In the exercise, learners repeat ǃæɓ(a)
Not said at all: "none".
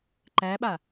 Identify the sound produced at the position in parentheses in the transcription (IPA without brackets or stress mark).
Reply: a